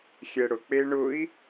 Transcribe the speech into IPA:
xʲɛɽʊ k͡peɳʊi̯

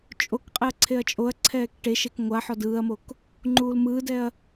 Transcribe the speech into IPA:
t͡ʃʼokqʼɛɐ̯ ǀʰeɐ̯t͡ʃʼoɐ̯ǀʰɛːk ʈeʃek ŋʷaħɔ dɯːɐ̯mok | ŋ͡ǃuːlmɯːdɛɐ̯

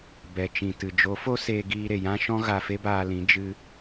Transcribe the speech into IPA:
bɛ˨t͡ʃĩ˨tɨ˨ d͡ʒo˨˦fo˦seː˧ ɡiː˧ɾe˨jã˦ʃɔ̃˦ ɣa˧fe˦baː˧lĩ˨˦ d͡ʒɨ˧

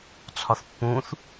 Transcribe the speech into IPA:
t͡sʰɒθpːũθ

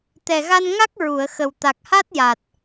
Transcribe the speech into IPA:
t̪ɛ˨˩ɣa˧nŋa˦˥k̚ ɹu˨˩˨ə̯xə˨˩w t̪a˨˩k̚ha˦˥t̚ja˨˩t̚

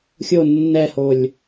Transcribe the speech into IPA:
xʲo nːɛholʲ

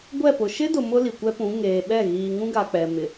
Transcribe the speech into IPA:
ɡʷɛ˦˨pʊ˨ ʃɪ˦dʊ˨ mʊ˦li˨kʷɛ˦pũ˨˦ ŋeː˨ɓɛ˦˨ ɣiː˨ŋũ˦ɡa˨ k͡pɛ˨mɪ˨

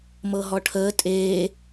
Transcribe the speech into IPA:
mɤɦɔʈʰəː tʼeː

